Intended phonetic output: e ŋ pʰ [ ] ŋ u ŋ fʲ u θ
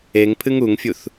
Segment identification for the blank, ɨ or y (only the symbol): ɨ